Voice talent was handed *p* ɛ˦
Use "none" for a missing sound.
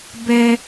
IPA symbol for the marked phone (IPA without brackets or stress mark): b